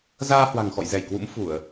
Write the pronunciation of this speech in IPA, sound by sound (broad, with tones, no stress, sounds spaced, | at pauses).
z aː˧ h w a̤˨˩ ŋ x ɔ̰˧˨ j z ɛ˧˩ j k w ṵ˧˥ m f u˧˩˨ ə̯